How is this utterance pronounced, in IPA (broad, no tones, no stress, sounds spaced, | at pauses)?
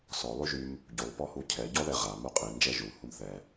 s ɔ lˠ y ʒ y m | ɟ u lˠ p ɔ h u cʰ ɛ ɟ ɔ ð ɛ ʁ a m u qʼ i n d͡ʒ ɛ ʒ u h u m θ ɛ